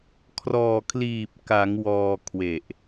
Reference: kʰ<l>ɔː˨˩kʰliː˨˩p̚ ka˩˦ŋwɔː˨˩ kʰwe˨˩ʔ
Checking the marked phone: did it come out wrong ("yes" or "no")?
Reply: yes